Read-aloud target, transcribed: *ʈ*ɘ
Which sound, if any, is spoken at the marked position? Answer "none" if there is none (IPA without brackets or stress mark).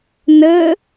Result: n